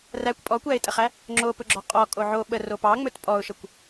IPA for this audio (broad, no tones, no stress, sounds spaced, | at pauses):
r æ kʷ pʼ ɔ kʷ æ ɪ̯ tʼ ə χ æ | ŋ͡ǁ o p ɵ ɡ͡ǁ ɔ qʼ ɔ kʼ o ʕ o ɓ ə r o p ɑ ŋ͡m ɵ t pʼ ɔ ʊ̯ ʃ ə kʷ